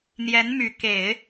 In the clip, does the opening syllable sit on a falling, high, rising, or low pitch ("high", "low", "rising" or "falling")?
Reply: rising